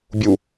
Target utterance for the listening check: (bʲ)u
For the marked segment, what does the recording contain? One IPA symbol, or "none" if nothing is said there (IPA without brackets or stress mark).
bʲ